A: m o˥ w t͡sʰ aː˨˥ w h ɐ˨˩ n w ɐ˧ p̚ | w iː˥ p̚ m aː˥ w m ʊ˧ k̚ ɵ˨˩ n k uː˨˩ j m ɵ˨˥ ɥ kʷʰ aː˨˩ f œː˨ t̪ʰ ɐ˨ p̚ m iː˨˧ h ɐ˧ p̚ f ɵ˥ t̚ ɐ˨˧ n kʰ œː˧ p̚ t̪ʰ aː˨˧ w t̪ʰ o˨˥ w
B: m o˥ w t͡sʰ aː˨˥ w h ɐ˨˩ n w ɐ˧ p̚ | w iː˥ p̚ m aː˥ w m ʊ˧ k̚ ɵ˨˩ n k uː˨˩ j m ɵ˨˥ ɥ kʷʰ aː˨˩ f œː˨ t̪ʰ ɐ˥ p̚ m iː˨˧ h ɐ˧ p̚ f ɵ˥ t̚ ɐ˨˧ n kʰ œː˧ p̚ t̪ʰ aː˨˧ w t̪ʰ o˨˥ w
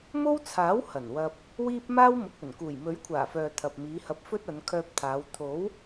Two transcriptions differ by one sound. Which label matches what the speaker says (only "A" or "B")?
A